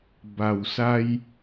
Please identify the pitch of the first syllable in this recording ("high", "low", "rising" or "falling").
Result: low